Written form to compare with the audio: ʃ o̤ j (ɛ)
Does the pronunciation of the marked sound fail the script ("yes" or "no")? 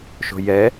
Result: no